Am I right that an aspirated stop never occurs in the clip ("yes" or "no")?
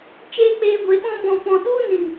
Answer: yes